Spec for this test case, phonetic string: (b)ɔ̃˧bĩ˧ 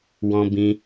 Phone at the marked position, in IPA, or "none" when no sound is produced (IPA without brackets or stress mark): w